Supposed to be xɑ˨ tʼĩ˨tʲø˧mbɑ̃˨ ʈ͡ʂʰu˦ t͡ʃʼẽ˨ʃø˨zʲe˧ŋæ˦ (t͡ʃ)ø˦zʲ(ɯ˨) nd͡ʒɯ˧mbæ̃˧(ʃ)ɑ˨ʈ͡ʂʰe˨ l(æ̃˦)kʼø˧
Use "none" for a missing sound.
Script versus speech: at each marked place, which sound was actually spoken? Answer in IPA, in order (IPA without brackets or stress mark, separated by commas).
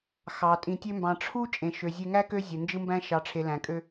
k, ɯ˨, ʃ, æ̃˨